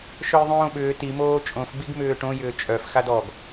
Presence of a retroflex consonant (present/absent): present